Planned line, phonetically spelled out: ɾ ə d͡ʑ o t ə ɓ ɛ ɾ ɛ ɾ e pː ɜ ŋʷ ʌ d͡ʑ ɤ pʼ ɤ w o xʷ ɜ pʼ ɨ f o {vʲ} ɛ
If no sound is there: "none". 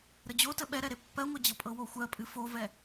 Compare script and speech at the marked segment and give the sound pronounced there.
v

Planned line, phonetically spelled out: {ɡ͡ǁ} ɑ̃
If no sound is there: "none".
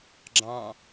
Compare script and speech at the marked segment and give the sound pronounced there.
ɡ͡ǁ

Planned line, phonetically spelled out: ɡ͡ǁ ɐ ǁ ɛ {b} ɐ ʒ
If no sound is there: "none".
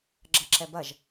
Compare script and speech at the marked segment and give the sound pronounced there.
b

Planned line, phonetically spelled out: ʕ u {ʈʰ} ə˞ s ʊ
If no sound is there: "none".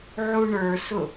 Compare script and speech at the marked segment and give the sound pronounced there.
ɳ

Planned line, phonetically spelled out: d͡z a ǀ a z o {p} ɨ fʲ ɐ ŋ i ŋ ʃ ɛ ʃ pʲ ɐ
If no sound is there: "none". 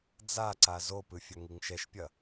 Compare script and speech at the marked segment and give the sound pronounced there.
p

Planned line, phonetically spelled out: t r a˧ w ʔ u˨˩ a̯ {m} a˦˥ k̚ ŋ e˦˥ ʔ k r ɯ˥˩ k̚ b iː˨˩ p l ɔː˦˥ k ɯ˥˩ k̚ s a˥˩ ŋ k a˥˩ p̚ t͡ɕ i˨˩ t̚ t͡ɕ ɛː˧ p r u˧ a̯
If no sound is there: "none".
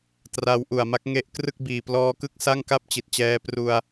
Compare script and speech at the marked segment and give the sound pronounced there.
m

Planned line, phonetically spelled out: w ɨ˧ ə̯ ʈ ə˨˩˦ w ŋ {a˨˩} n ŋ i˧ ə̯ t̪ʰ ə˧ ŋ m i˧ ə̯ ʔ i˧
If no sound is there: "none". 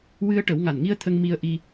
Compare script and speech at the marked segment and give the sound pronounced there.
a˨˩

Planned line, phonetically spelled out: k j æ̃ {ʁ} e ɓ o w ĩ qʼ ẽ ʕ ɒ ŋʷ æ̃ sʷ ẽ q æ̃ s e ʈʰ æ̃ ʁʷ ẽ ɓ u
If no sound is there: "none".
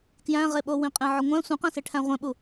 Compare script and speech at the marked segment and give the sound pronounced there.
ʁ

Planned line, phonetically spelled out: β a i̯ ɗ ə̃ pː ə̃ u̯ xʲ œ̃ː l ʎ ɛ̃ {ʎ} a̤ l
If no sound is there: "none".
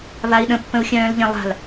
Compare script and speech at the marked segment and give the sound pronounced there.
lˠ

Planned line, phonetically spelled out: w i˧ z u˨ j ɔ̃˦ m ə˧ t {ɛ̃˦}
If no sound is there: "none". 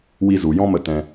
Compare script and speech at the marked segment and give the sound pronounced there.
ɛ̃˧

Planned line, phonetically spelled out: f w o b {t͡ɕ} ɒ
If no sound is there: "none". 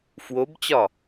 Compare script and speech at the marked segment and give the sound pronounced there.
t͡ɕ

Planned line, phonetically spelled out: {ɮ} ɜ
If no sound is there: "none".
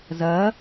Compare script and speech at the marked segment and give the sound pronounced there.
z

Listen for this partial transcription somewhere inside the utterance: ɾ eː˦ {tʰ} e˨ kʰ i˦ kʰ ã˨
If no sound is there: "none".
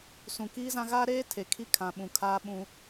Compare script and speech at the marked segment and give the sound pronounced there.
tʰ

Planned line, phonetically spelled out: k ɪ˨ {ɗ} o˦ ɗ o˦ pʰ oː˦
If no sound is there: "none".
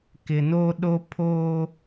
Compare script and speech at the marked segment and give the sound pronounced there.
n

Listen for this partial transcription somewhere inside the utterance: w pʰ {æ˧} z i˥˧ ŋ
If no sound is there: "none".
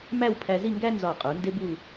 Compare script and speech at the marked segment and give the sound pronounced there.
æ˧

